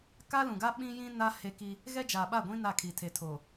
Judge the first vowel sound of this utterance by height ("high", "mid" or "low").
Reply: low